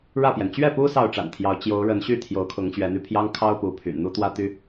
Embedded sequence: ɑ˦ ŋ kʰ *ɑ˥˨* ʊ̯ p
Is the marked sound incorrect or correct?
incorrect